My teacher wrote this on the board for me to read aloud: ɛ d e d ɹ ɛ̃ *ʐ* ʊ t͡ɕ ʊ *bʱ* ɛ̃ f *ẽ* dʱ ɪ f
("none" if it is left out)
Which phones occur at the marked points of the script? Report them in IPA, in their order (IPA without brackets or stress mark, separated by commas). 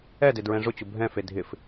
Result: ʐ, bʱ, e